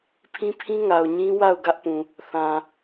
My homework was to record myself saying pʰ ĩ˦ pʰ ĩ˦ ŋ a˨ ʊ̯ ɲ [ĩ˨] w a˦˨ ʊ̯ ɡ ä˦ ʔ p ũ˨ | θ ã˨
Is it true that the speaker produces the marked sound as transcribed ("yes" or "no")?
no